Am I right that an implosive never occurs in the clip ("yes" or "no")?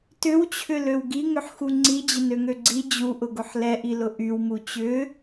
yes